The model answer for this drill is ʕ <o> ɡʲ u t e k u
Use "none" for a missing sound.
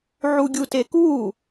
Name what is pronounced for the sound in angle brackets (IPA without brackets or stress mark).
u